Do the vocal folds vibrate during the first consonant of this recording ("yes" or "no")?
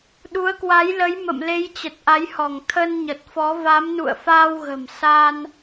yes